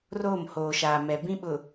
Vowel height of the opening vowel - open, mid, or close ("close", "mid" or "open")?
mid